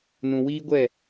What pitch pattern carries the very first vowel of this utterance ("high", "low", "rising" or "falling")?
low